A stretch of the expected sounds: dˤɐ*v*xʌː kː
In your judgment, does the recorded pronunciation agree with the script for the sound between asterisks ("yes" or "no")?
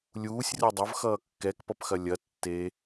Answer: yes